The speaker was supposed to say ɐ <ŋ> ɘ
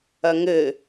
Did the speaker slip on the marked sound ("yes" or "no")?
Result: no